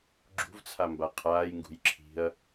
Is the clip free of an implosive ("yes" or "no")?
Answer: yes